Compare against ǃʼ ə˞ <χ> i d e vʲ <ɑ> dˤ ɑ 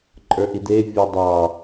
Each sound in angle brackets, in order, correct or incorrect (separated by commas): incorrect, incorrect